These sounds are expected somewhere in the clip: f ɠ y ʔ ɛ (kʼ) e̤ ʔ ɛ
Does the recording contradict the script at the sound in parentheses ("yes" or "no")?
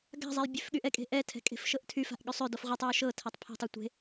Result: no